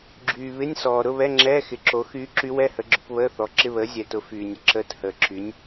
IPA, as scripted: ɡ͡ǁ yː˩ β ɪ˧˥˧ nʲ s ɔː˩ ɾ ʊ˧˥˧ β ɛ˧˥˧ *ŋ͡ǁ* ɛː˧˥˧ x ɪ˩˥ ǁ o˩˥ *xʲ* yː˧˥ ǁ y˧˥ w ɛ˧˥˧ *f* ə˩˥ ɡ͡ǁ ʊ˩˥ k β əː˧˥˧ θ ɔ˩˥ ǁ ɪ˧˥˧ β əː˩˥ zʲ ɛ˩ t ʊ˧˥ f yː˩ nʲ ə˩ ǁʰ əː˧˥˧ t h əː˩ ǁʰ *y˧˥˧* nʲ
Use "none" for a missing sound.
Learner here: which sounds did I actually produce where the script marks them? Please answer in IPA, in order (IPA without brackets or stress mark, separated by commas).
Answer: ŋ͡ǁ, x, h, y˩˥